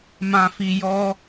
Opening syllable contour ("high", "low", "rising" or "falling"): low